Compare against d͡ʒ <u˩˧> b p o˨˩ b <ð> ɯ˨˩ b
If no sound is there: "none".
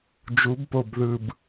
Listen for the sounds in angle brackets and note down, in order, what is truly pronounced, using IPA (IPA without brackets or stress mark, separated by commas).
u˩˧, ð